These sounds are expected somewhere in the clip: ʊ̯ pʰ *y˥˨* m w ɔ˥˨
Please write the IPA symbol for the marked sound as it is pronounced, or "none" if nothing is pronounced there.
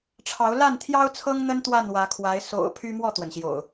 y˦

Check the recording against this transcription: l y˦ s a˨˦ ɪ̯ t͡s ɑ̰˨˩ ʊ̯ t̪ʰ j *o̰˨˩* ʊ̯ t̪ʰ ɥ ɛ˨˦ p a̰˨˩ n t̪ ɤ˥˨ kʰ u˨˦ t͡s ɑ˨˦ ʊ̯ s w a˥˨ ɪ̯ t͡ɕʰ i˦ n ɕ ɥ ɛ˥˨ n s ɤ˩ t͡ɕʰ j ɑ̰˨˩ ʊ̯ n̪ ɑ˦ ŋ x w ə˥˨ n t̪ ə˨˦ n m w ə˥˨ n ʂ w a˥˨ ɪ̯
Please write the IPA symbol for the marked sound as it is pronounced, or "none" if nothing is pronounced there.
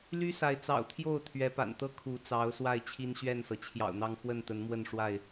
o˥˨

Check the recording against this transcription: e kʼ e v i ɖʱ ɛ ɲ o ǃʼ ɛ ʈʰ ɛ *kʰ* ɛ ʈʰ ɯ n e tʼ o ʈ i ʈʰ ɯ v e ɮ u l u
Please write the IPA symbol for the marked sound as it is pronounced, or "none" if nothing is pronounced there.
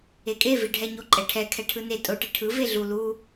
kʰ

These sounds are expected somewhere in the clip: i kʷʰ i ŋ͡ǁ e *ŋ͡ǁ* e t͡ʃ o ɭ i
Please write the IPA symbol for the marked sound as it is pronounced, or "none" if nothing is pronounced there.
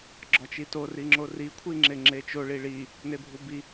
ŋ͡ǁ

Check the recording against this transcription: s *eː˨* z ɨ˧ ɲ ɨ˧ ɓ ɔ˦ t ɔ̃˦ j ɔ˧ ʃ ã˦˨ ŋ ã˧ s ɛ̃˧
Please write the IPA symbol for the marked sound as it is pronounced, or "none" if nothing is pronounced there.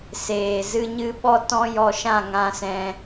eː˨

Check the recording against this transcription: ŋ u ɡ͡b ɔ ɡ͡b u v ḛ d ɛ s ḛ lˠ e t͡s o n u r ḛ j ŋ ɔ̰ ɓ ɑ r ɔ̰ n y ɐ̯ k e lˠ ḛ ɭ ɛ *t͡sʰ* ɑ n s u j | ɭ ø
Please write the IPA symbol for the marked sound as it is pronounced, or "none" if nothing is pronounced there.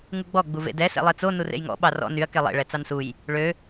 t͡s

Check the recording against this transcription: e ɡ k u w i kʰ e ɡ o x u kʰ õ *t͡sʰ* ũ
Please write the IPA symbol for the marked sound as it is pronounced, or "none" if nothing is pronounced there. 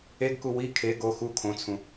t͡sʰ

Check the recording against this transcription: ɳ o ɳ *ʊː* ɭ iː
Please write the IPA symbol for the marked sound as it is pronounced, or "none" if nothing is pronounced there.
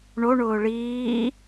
ʊː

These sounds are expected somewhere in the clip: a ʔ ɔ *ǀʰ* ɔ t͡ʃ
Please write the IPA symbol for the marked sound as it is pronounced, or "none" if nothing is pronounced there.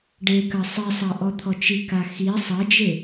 t̪ʰ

